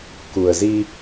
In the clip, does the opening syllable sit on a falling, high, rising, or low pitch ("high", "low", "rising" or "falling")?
low